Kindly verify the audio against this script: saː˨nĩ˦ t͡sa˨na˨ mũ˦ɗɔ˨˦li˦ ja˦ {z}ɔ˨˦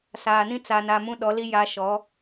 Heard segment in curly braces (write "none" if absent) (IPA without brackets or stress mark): ʃ